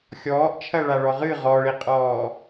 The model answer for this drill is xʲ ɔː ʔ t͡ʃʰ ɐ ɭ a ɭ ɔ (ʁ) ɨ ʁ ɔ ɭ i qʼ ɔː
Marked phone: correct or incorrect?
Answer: correct